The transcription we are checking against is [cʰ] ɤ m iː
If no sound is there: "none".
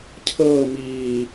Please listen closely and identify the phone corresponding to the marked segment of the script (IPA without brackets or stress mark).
cʰ